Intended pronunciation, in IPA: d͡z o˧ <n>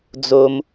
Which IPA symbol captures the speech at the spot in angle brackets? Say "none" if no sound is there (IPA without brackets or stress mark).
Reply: m